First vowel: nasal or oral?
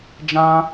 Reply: nasal